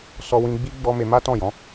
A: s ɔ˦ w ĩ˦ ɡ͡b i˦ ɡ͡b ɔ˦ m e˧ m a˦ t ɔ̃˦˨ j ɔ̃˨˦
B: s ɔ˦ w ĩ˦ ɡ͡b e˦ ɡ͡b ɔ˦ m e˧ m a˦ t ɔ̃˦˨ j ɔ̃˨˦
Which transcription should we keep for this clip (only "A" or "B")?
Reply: A